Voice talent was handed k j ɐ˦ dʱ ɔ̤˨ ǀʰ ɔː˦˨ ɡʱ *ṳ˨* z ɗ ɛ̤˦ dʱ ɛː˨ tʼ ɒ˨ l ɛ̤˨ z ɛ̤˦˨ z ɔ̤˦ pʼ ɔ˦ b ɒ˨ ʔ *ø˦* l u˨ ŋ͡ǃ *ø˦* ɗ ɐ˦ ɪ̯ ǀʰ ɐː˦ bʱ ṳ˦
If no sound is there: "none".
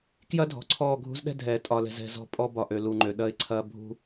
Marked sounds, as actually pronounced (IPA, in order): ṳ˦, ø˨, ø˨

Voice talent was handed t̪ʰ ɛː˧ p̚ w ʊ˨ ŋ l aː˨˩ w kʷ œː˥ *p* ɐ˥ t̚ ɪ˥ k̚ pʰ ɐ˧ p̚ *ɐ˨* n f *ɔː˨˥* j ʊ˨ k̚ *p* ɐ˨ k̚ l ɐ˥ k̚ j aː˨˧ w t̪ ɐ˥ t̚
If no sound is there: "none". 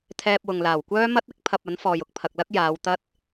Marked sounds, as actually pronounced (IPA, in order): m, ɐ˨˥, ɔː˨, pʰ

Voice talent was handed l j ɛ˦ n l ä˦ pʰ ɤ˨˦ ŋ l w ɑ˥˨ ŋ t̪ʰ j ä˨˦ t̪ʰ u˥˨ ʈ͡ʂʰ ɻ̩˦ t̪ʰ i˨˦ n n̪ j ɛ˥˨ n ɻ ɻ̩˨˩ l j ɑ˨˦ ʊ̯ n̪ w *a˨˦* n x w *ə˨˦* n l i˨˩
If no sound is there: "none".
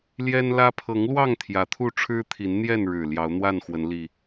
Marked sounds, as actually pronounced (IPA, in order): a˥˨, ə˨˦

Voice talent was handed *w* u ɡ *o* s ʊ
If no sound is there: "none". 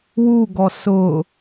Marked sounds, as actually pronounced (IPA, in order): w, ɔ

